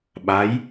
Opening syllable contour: rising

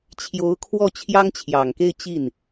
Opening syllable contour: rising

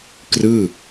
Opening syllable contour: falling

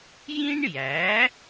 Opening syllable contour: high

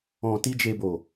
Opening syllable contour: low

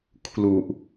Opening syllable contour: low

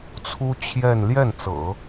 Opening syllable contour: high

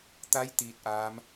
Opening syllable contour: rising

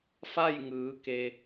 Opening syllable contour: falling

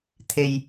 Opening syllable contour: low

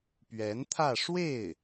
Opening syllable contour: rising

